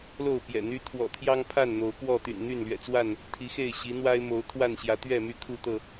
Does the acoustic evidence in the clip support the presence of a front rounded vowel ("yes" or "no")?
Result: yes